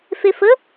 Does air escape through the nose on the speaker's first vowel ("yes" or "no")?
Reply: no